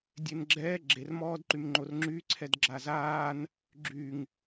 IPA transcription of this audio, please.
dʲ e n ɡ͡ǁ ɛː ɡ͡ǁ e r m ɔː d ǃ y m ŋ͡ǃ o r ŋ͡ǁ y ǀʰ ɛ d ɡ͡ǁ a z aː n | ɡ͡ǁ y ŋ

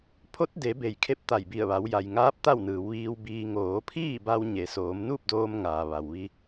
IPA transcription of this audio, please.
pʰ o˧˥ t̚ d e˩˧ b e˧˩ j kʰ e˧˥ p̚ t̪ a˧˩ j b i˧˩ ə̯ ʋ a˩˧ w j a˩ j ŋ aː˧˥ p̚ t̪ a˥˨ w n ɯː˩˧ w ʋ iː˧ w b iː˧ ŋ oː˩˧ pʰ iː˥˨ b a˧ w ɲ e˩˧ s oː˩˧ m n uː˥˨ p̚ d oː˧ m ŋ aː˩ ʋ a˩ w ʋ i˧

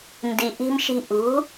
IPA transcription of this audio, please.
n d i˨ ʔ i̤˧ m ʃ i̤˧ ʔ ṳ˨˦

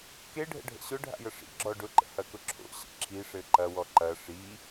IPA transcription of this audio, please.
k e ɖʱ ə̰ ɖʱ ə̰ ɕ ʊ ɖʱ a̰ j ə ʂ ḭ ɡ͡ǁ ɔ ɖ ʊ ǃ ə̰ h ɐ k ʊ ǁʰ o̰ ɕ ə̰ ǁʰ i ʂ ɘ ǃ ɐ w ɔ ǃ ɐ ʂ i

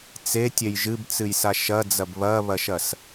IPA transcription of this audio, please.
t͡s e tʲ e j ʒ ɨ b t͡s ɨ j s a ʃ ɐ d͡z ɐ b β ɐ β ɐ ʃ ɐ s

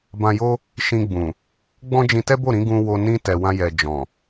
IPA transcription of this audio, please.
b ã˧ j o˦ | ʃ ĩ˧ ɡ͡b ũ˨ | ɡ͡b ɔ̃˦ d͡ʒ ĩ˧ t ɛ˦ b o˦˨ ɾ ĩ˧ ɡ ũ˧ w o˧ n ĩ˦ t ɛ˧ w ã˦ j ɛ˧ d͡ʒ ɔ̃˨

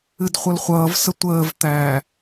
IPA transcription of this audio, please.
ɨ d χʷ ʌ l χʷ ʌː v s ə tʷ əː v t̪ æː

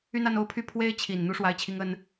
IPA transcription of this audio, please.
y˥˧ n a˥˧ n o˥˩ ʊ̯ pʰ y˥ pʰ w e˥ ɪ̯ t͡ɕʰ i˨˩ n n̪ u˥ ʂ w a˥ ɪ̯ t͡ɕʰ i˥ ŋ ə˥ n

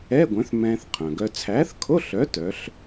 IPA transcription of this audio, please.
ɛ˧˥˧ ɡʷ œ̃˨˥ θ m ɛ̃ː˧ θ qʰ œ̃˩ ɡ œ˧ t͡sʰ æː˨˥ θ kʰ o˧˥˧ ɬ œ˨˥ t œ˨˥ ɬ

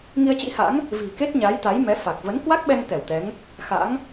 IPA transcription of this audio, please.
ŋ i˧ ə̯ t͡ɕ ḭ˧˥ h a̰˧˥ ŋ | v i̤˨˩ k e˦˥ t̚ ɲ aː˨˦ j t̪ a˨˦ j m ɛ˨˦ f a˨˩ k̚ v ə˨˦ n k w a˦˥ k̚ ɓ ɛ˧ ŋ t̪ ɛ˧˩ w t̪ ɛ˨˦ ŋ | x a̰˧˥ ŋ

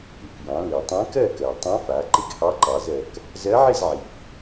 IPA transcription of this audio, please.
ɨ˩ k j ɑ̃˩˧ l i˩ tˤ ɛ̃˧˥ k ɜ˥˨ k ɜ˩ tˤ ã˧˥ f a˩˧ ǃ ɪ˥˨ ɡ h ɑ˧˥ ǃ ɑ˩˧ z ɜ˩ k | z ɜ˧˥ ʕ ɪ˥˨ z ʕ i˩ f

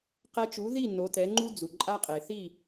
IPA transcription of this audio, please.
q ɛ˧ t͡ʃ u˩˥ ð i˥˩ n o˩˥ t ɛ˩˥ ŋ͡ǃ u˥ d͡z u˩ ǃʼ a˥ qʼ e˩ θ i˥˩

